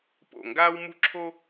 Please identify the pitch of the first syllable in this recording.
falling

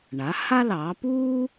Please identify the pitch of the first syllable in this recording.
rising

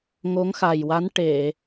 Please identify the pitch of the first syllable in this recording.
rising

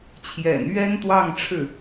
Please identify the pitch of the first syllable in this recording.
low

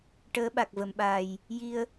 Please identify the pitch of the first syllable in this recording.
rising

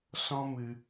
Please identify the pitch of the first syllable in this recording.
high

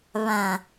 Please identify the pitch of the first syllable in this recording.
low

